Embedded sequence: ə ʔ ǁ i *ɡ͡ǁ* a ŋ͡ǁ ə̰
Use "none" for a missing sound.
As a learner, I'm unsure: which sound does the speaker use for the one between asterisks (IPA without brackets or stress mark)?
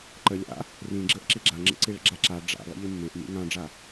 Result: ɡ͡ǁ